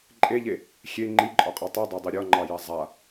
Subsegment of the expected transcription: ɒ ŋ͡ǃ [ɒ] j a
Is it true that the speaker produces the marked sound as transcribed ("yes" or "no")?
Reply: no